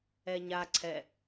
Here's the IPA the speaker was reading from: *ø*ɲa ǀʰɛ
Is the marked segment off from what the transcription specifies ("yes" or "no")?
yes